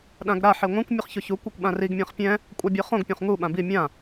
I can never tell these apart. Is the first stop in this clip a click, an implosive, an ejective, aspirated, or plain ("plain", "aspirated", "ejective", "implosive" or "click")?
implosive